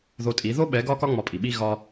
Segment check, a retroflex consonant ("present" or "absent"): absent